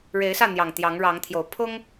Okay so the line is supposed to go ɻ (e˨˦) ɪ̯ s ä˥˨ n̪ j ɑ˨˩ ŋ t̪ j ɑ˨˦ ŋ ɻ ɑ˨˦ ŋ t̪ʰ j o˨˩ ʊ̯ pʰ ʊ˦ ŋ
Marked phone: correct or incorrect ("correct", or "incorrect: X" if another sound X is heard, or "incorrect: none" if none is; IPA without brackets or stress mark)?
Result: correct